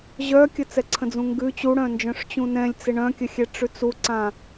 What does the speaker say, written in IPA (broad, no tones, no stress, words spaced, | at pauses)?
ʑœkʲə t͡sɛǀʰə̃d͡zũŋɡʉ t͡ɕuɽœ̃nd͡ʒœ̃ʂ t͡ɕũnɛ̃lʲt͡sɪ ɳœ̃kʲəxʲɛ ʈ͡ʂʉt͡suǀã